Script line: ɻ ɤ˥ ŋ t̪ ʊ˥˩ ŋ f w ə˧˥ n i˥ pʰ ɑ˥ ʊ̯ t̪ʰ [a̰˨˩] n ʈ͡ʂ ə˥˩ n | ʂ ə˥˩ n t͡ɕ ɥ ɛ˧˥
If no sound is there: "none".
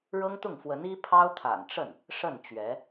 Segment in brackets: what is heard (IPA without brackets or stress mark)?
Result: a̰˨˩